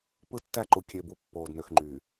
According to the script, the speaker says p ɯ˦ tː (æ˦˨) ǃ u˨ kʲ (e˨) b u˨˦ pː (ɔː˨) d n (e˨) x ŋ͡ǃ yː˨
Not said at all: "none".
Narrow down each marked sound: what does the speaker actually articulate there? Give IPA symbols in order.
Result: æ˦˨, e˨, oː˨, ø˨

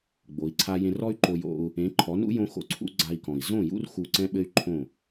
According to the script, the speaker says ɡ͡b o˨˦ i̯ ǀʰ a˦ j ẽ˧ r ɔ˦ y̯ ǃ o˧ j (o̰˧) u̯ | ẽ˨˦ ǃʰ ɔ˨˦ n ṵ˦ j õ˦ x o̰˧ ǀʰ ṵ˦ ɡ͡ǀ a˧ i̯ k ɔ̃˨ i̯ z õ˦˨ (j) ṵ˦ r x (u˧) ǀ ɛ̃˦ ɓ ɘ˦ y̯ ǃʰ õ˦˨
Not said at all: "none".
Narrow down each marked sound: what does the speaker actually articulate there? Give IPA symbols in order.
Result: o̰˧, j, u˧

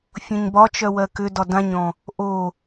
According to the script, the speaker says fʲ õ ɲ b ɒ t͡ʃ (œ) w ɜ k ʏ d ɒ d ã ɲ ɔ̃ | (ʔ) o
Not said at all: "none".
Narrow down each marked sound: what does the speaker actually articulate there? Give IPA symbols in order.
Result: œ, ʔ

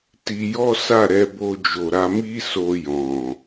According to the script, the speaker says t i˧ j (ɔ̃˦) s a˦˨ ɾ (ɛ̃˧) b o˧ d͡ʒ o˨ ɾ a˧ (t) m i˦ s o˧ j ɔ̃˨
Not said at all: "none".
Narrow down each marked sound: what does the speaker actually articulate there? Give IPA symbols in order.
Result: ɔ˦, ɛ˧, none

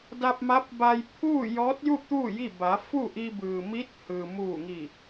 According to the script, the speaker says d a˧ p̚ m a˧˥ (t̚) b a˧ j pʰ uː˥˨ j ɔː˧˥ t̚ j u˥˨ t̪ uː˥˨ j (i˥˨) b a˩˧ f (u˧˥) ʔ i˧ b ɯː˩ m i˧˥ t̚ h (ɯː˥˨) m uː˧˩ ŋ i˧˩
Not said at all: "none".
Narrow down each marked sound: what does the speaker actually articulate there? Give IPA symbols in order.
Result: p̚, i˥˨, u˥˨, ɯː˩

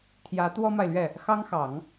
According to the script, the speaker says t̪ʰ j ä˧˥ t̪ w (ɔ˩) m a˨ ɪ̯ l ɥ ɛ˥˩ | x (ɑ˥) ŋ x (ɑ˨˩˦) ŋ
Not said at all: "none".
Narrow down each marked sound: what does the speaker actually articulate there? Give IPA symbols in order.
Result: ɔ˥, ɑ˥, ɑ˨˩˦

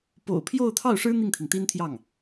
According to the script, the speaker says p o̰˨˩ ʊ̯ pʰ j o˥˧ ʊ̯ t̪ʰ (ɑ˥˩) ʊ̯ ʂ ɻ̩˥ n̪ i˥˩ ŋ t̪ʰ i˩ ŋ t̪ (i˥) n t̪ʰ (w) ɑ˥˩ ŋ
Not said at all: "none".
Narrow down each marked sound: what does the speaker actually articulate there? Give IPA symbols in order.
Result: ɑ˥˩, i˥, j

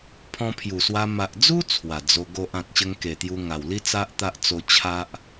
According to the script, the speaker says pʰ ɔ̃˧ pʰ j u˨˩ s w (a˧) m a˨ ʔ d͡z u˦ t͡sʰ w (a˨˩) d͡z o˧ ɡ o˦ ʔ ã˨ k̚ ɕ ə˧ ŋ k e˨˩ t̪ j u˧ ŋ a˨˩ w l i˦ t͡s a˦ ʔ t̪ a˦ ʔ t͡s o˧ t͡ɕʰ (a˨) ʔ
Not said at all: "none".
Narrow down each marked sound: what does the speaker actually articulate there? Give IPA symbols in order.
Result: a˧, a˨˩, a˦

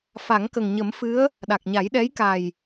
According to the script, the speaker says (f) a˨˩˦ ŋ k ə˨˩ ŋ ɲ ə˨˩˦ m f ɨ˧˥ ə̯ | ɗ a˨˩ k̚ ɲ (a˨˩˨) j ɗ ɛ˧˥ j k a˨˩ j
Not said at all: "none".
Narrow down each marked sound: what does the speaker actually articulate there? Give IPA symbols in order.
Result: f, a˨˩˦

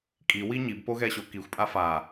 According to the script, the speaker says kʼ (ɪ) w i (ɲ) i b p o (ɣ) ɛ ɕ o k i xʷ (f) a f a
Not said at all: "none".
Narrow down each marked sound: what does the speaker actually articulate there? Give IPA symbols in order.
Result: i, ɲ, ɣ, pʼ

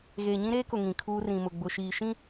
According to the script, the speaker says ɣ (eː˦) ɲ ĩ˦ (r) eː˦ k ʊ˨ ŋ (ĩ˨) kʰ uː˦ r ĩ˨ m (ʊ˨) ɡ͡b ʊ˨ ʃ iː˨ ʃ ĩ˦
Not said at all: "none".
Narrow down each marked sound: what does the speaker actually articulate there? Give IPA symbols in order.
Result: eː˨, ɾ, ĩ˨, ʊ˨

